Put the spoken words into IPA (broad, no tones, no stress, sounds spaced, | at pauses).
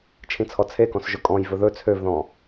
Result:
t͡ʃʰ ĩ t͡sʰ ɔ t͡sʰ e k ɔ̃ s ʒ ɵ kʼ ɔ̃ j v ɵ ð ɵ t͡sʰ ø v ð ɔ̃